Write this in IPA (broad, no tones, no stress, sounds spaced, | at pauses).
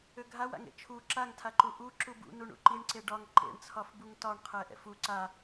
ø ɡʱ a w a̰ ŋ ḛ t͡ʃʰ u ǁ a ŋ tʰ a ǃ u ʔ u ǁ u b ṵ n u ɳ ṵ ǃ i ɳ ǀ e ɖ ɒ ŋ ǃ ḛ ɳ t͡sʰ ɒ f b u ŋ t ɒ ɳ qʰ ɛ ʔ ɛ̰ f u ǀ a